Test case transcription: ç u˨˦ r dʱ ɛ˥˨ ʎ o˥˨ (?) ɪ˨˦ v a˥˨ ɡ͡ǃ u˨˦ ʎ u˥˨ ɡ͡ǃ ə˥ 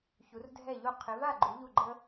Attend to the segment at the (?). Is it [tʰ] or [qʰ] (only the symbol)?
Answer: qʰ